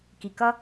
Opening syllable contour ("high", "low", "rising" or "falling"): low